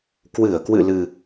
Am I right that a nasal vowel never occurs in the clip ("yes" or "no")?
yes